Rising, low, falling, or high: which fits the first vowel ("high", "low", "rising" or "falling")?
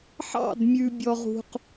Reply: falling